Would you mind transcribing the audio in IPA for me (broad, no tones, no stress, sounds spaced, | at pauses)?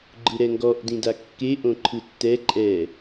ɡ͡ǃ ɯ ɾ ɛ ŋ ɡ ɔ ʔ d ĩ d a kː e ʔ õ ǃʰ ɯ tː ɛ ǃʼ ɛ